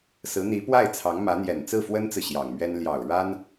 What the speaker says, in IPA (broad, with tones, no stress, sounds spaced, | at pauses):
s ɹ̩˧˥ n̪ i˧˥ p w a˥˩ ɪ̯ t͡sʰ ɑ˧˥ ŋ m ä˧˥ n̪ j ɛ˨˩ n t͡s ɹ̩˥˩ f w ə˥ n t͡s ɹ̩˨ ɕ j ɑ˨˩ ŋ m ɥ ɛ˥ n l j ɑ˨˩ ʊ̯ ɻ a˥ n